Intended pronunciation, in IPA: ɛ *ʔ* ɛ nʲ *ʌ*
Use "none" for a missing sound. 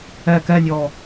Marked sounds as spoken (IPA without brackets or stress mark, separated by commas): k, ɔ